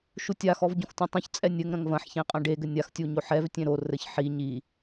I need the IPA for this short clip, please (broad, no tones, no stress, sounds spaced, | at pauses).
ʃ u tʲ a x ɔ v ɟ õ x tʲ õ tˤ õ ç t͡sʼ ɛ nʲ ɘ ŋ ɾ ɐ̃ ŋ v ɐ̃ ħ ç ẽ qʼ ɐ̃ ɖ e ɡ ɘ nʲ a x tʲ u ɲ o ħ ɛ v tʲ ẽ ɾ o r ɘ ç ħ i ɲ i